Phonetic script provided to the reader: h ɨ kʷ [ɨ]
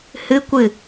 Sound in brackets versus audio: correct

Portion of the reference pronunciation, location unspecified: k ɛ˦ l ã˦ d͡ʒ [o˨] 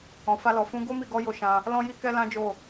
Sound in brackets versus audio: incorrect: o˦˨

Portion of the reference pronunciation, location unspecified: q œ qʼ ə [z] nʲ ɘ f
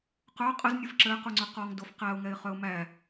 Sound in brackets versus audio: correct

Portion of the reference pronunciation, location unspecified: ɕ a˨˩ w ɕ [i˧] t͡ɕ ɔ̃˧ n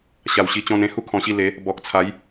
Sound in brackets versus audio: correct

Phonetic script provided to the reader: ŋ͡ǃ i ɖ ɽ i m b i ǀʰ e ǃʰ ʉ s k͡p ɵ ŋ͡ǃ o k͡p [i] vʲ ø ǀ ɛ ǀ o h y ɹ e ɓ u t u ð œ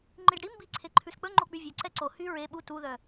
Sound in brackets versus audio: incorrect: y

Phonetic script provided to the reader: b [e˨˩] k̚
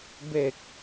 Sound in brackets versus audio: correct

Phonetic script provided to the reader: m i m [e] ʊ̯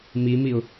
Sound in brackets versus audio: incorrect: i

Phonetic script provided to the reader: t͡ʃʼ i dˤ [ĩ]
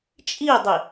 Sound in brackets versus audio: incorrect: i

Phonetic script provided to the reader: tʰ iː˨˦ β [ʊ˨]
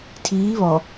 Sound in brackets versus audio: incorrect: ɔ˨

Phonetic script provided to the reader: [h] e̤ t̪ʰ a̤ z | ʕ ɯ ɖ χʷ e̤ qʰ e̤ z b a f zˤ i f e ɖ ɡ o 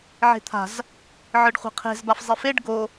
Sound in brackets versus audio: incorrect: ʕ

